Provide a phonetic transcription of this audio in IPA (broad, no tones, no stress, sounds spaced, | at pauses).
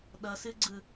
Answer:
ɗ ʌ s ɨ ɡ͡ǀ ɯ